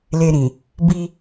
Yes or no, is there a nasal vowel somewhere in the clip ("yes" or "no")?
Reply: yes